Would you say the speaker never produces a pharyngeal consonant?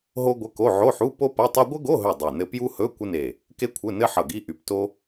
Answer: no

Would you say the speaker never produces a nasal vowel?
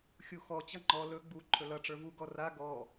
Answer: yes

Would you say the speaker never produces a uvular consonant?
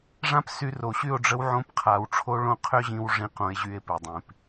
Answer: no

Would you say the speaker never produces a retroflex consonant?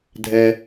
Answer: yes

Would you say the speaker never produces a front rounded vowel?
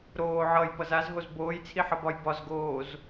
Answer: yes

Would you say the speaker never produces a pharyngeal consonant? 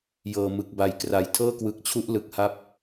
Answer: yes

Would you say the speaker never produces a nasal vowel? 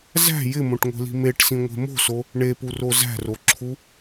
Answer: no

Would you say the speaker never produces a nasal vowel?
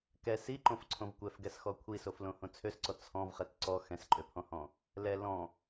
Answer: no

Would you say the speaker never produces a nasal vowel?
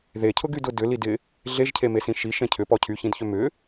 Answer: no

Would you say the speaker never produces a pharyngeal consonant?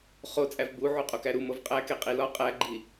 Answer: no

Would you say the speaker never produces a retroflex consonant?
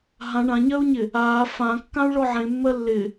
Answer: no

